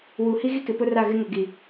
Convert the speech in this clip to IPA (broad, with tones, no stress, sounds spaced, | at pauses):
w u˨ h i˦ ɣ i˦ k ɪ˨ p ʊ˦ r a˦˨ ɣ ɪ˦ ŋ ʊ˨ ɡ i˨